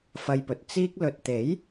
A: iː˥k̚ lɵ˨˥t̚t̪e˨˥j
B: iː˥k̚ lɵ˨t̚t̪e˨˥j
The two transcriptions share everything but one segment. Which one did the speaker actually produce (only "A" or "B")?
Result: B